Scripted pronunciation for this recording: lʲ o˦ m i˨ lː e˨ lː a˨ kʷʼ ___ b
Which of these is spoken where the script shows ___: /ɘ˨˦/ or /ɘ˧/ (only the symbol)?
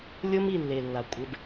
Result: ɘ˧